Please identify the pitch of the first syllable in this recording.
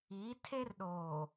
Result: rising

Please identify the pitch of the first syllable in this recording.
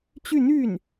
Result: falling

